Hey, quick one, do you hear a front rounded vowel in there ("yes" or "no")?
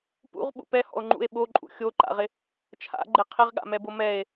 no